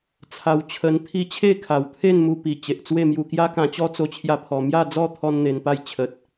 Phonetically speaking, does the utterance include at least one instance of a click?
no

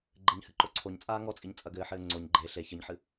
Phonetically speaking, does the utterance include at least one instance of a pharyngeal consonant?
yes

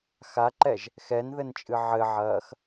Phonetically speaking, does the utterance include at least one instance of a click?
yes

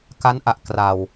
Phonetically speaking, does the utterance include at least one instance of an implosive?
no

